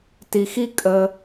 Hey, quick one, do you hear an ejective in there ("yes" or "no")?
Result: yes